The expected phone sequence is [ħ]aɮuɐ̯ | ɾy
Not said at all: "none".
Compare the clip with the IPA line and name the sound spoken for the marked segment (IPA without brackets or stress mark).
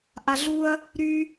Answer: ʔ